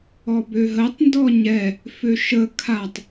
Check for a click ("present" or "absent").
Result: absent